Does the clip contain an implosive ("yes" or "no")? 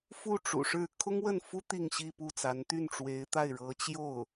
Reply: no